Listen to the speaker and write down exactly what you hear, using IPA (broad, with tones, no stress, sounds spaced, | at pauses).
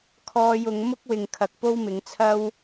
kʰ ɔː˧ j ʊ˨˧ ŋ m ʊ˥ k̚ w ɪ˨ ŋ kʰ ɐ˨ k̚ p o˥ w m ɪ˨˧ ŋ t͡sʰ ɐ˥ w